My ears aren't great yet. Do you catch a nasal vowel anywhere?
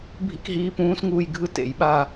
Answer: yes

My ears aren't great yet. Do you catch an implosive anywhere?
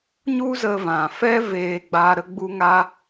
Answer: no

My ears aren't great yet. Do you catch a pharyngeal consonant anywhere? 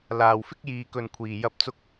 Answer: no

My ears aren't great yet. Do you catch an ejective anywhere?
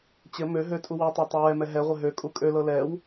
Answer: yes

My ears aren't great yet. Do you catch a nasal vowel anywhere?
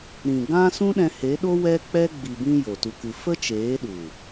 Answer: yes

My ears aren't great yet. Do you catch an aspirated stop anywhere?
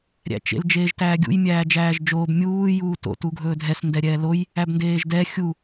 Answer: no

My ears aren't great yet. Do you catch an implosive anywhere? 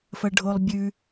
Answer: no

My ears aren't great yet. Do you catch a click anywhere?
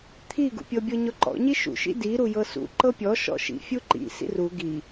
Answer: yes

